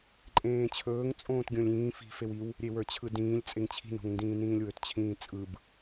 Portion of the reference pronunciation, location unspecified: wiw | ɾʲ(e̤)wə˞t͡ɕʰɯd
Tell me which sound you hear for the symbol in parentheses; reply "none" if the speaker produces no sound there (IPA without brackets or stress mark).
e